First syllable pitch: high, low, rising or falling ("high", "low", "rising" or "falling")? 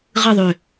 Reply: falling